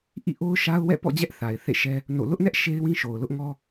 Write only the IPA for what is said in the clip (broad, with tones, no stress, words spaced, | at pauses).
ʔḭ˦˨ʔo˦ʊ̯ʃa˦ʊ̯wɛ̰˦˨ pɔ̰˦˨d͡ʑɛ˦ʔ θa˨ɪ̯θḛ˦˨ʃɛ˦ | no̰˦˨ lʊ˦ʔnɛ˦ʔ ʃe˦ɪ̯wĩ˦ʃo˨ʊ̯lʊ˦ʔ ŋɔ˦